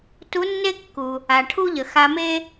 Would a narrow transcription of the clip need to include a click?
no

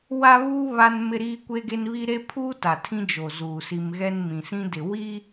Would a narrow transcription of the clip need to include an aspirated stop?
yes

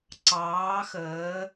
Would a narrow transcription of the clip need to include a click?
yes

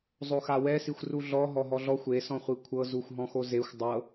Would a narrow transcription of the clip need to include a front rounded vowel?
no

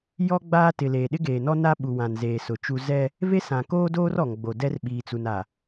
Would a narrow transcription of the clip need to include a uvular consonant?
no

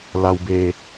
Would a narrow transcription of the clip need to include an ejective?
no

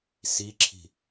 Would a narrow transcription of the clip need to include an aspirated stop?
yes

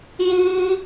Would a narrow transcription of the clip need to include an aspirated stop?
no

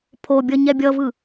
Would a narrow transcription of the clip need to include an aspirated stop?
yes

